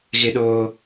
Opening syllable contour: high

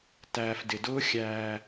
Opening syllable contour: low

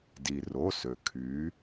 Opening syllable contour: low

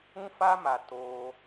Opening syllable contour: high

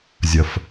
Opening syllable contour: low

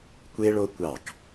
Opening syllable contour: high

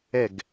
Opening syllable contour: falling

